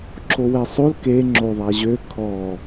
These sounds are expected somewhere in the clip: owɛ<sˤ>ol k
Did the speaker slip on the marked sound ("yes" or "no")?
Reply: no